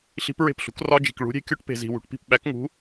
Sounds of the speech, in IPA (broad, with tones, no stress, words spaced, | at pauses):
ɬi̤˦˥pɹe̤˥˩pɬṳ˨˥k rɒ˦˥d͡ʒi̤˨k ɭṳ˨˥ɾʲe̤˦˥kʲo˦˥ʈ pe̤˨zi̤˨ wṳ˨ʈpi̤˥˩p ɓæ˨˥kŋṳ˨˥